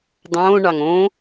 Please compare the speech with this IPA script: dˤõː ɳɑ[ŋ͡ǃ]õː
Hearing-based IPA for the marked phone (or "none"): ŋ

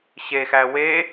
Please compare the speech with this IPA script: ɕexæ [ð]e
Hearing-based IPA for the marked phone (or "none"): w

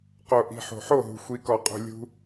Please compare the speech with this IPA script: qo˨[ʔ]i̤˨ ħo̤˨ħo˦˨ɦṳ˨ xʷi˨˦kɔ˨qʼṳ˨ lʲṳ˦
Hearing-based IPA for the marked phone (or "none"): ʔ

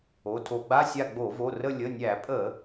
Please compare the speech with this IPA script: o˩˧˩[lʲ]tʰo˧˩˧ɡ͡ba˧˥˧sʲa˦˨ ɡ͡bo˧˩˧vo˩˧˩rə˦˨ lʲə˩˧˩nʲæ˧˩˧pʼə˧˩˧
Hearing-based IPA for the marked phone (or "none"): none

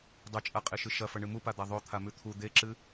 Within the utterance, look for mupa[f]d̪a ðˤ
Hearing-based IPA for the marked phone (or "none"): none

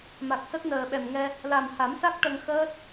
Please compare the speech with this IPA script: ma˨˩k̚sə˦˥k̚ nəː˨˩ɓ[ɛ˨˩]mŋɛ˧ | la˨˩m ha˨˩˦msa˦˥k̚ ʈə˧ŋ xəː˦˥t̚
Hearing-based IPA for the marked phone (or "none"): ɛ˨˩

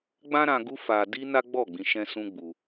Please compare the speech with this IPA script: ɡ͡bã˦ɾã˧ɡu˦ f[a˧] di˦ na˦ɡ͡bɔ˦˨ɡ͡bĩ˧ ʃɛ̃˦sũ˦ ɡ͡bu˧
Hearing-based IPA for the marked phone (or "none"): a˧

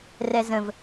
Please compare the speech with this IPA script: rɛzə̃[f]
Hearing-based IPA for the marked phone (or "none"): v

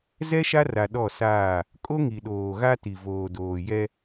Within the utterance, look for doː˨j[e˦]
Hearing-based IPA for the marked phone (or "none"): ɛ˦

